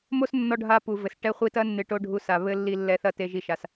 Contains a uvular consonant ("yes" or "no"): yes